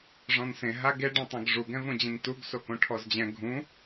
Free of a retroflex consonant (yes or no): no